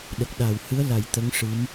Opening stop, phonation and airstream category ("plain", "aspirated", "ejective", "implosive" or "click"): implosive